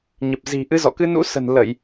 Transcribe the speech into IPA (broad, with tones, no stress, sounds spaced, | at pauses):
ɲ ə˨˩ p̚ z i̤˨˩ ʔ ɨ˨˦ z ɔ̰˧˨ k ɨ˧ n ṵ˧˥ s ə̤˨˩ n l ə˧˩˨ j